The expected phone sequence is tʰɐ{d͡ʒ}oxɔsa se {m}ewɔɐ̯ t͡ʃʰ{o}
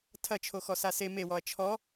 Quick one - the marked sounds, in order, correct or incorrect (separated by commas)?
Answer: incorrect, correct, incorrect